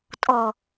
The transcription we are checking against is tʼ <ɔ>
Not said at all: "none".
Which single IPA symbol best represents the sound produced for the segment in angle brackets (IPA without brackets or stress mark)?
ɔ